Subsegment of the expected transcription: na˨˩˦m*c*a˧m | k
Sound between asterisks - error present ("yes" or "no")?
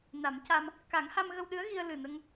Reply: no